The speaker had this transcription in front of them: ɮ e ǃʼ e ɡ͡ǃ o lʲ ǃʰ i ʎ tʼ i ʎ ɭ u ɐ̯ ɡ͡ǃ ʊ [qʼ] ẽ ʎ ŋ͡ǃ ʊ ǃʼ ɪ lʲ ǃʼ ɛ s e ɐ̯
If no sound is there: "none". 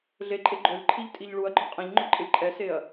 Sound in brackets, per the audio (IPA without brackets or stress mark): qʼ